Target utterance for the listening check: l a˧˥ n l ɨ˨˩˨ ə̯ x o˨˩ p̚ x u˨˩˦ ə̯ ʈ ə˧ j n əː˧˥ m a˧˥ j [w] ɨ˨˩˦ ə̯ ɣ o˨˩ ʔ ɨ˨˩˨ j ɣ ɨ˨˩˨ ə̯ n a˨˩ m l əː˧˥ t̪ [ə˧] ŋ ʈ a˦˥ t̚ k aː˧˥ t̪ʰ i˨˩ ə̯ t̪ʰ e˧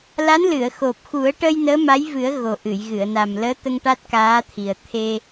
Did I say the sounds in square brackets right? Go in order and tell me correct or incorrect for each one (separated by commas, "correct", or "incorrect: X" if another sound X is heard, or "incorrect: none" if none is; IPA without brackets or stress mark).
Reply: incorrect: v, correct